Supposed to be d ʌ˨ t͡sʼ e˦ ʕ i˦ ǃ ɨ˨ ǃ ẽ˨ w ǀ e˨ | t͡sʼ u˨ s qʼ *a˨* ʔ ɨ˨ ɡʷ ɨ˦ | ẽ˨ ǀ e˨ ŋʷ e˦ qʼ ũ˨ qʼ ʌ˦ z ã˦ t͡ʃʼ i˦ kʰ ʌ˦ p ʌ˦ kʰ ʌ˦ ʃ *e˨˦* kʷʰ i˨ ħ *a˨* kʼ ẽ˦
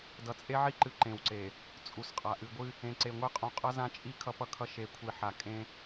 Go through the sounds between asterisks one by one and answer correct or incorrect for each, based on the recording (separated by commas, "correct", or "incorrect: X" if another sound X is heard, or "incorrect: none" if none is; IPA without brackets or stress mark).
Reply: correct, correct, correct